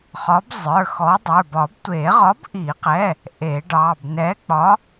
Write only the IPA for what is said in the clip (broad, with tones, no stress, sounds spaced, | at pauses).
χ ɒ˨˥ b zˤ ə˞˩˧˩ x ɔ˨˥ dˤ ə˞˩˧˩ b ɒ˨˩˦ b tʷ e˨˩˦ ʁ ɒ˨˥ b ʔ i˨˩˦ q ɛ˩˧˩ | ʔ e˨˩˦ ɖ ɑ˩˧˩ b n ɛ˨˥ k͡p ɒ˨˥